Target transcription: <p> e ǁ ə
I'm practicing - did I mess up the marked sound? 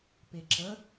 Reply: no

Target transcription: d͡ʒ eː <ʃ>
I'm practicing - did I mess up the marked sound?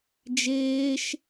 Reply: no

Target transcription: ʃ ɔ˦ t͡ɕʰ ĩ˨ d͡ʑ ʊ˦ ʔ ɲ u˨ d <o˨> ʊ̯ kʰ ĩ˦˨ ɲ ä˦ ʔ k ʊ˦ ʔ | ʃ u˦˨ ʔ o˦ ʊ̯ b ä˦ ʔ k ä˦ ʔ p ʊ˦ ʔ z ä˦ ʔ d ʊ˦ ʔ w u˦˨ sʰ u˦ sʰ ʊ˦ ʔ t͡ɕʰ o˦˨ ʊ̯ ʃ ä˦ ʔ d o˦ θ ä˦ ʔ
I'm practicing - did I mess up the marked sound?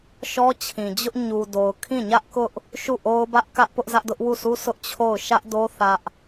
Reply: no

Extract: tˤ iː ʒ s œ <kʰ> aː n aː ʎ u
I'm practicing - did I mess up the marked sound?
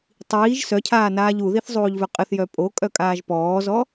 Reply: yes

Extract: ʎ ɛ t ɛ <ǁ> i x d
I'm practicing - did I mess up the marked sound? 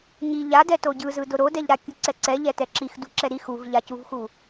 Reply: no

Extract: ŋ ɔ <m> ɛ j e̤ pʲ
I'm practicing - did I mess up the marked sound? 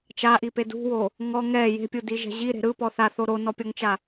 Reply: yes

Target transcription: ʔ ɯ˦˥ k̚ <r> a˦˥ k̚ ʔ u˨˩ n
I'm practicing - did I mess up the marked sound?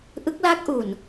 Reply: yes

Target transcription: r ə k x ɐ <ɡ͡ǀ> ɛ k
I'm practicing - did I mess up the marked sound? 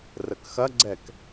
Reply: no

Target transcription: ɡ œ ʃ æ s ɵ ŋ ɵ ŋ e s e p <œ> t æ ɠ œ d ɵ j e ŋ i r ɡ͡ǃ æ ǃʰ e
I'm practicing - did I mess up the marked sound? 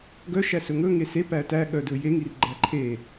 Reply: yes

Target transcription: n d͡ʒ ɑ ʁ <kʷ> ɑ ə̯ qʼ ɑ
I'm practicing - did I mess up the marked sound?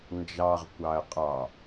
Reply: no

